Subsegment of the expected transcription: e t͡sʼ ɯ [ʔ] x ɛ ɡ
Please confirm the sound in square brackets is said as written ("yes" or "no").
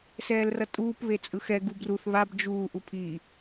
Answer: no